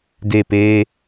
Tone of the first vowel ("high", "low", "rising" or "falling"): falling